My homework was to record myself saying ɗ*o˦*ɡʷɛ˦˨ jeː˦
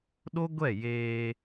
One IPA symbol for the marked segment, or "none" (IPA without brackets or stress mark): o˦